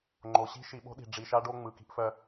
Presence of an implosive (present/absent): present